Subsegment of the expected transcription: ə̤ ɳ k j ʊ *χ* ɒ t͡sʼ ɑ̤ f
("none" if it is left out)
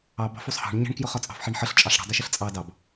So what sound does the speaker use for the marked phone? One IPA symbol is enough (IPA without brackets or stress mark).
χ